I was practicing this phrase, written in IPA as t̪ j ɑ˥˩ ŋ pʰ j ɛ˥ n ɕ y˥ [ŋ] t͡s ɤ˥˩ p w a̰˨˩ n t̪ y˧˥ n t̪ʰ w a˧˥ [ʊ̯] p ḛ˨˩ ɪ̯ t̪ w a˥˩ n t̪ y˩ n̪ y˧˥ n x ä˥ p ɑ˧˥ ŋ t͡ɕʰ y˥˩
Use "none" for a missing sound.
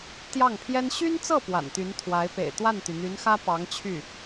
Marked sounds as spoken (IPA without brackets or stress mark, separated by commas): n, ɪ̯